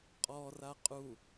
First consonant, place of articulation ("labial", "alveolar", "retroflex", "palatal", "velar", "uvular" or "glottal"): uvular